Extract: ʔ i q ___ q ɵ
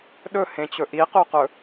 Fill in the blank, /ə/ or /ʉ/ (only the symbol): ʉ